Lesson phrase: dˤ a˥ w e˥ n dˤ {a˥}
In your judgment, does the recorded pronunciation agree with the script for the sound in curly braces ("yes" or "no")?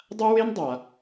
no